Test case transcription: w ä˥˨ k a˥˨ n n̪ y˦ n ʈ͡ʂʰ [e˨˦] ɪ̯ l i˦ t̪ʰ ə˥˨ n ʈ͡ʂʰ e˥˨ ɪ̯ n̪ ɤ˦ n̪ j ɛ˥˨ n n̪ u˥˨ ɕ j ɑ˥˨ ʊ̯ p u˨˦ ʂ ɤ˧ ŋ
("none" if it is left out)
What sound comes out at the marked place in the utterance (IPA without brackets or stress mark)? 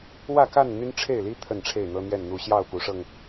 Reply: e˥˨